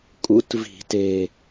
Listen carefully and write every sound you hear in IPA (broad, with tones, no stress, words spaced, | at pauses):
kʼṵ˧˥tvi̤˨˩˦te˨˩